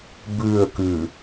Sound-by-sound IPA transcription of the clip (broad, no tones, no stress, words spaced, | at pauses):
bʉə̯kʉ